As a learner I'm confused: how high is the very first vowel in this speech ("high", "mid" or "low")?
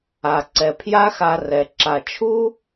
low